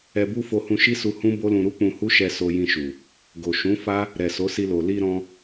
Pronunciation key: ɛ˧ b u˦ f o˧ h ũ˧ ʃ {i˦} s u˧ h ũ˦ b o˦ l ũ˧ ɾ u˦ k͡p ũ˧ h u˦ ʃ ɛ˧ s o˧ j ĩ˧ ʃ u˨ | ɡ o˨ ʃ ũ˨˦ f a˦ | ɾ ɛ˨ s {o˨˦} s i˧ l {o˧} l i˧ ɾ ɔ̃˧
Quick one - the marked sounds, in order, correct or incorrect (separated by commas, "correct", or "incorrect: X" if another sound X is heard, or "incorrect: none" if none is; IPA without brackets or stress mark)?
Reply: correct, correct, incorrect: o˨